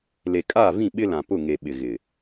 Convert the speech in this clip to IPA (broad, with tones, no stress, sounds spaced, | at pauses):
l e˨ kʼ aː˦˨ v ĩ˦˨ ɓ ɪ˦ l ã˨ p ʊ˦˨ ŋ e˨ ɓ ɪ˨ ɣ ɪ˨